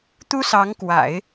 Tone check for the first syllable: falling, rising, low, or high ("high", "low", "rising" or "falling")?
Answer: high